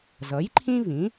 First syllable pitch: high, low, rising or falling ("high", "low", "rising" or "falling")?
rising